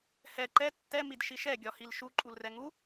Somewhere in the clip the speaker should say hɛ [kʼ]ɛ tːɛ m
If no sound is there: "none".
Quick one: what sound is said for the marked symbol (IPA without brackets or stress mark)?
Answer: ǃ